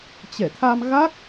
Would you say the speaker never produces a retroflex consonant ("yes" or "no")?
yes